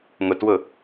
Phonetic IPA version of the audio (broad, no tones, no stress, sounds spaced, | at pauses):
ŋ ʊ t w ʊ